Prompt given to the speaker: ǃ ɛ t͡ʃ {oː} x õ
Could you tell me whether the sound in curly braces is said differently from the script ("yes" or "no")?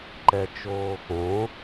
no